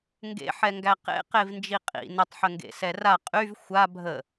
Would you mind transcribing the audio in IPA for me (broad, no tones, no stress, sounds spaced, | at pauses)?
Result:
ŋ ɡ ḛ ħ ɛ ŋ ɡ æ q ḛ q e v n d͡ʒ i qʼ ḭ n ə tˤ ħ ə ŋ ɡ ḛ s ɛ r a qʼ y v xʷ a bʱ ə